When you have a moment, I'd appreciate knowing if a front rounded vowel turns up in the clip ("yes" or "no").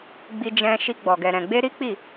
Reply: no